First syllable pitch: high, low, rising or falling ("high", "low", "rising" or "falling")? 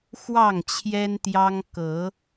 falling